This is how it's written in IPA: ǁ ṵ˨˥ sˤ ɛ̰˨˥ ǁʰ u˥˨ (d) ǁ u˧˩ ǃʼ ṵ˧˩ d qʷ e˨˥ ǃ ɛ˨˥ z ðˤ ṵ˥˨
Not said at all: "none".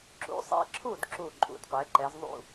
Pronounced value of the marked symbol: d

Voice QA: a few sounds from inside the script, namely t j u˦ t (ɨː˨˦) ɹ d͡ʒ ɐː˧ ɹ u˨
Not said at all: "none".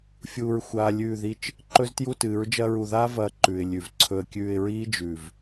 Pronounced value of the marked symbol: ɨː˨˦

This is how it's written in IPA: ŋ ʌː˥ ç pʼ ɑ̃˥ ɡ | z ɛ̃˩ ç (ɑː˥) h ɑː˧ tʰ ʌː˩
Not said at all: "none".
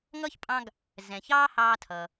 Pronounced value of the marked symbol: ɑː˥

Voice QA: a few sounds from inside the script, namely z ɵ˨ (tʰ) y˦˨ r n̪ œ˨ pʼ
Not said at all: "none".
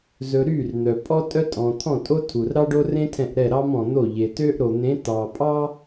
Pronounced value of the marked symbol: ɾ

